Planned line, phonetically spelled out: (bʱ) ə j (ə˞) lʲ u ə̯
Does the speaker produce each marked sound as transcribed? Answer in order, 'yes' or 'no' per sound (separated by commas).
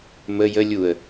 no, no